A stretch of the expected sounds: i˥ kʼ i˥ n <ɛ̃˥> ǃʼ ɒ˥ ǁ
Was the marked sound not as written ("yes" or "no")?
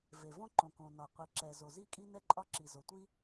yes